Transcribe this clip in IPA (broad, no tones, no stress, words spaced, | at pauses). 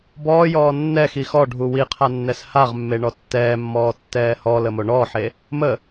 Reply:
bɔːjɔː nːɛxi xɔɖʱu wiqʰanːɛs haʁmːeɳɔ tːɛːmːɔːtːɛː hɔləmo ɳɔːħe | mə